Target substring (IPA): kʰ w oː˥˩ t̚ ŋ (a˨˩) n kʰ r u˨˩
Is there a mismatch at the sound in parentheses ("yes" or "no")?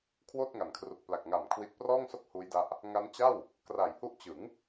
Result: no